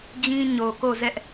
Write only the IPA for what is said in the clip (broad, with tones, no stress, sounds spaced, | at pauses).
d͡ʑ ĩ˦ ɲ o˨ k o˦˨ z ɛ˦ ʔ